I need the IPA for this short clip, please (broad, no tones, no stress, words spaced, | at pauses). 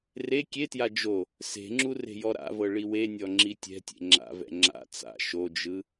re kʲetja d͡ʒo | se̤ŋ͡ǁu re̤jɔɾa̰vɤ ɭiwenʲɔ ŋ͡ǁitʲɛ̤tʲḛ ŋ͡ǁa̰vɛ̰ ŋ͡ǁa̰ t͡sa̰ ʃod͡ʒɯ